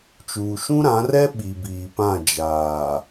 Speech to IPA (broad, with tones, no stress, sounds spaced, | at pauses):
t͡ʃ uː˨ ʃ ũ˦ ɾ ã˨˦ r ɛ˦ ɓ i˨ b iː˨ p ã˦˨ d͡ʒ aː˨